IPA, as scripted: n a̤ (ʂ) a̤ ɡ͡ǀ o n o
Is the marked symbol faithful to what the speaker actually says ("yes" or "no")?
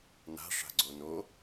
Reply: yes